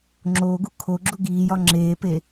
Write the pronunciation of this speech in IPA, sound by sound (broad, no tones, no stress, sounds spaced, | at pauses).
ŋ͡ǁ o ɡ u kʰ o ɡ͡ǁ u ɡ iː j ɒ ŋ͡ǁ eː p e